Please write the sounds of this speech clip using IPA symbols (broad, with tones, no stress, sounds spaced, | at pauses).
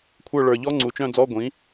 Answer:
kʷʰ ə˞˦˨ ɭ ə˞˨˩ ʎ ɔ˦˥ ŋ͡ǀ u˨˩ t͡ʃ œ̃˦˨ d͡z ɔ˧˥˧ ɡʷ ĩ˩˥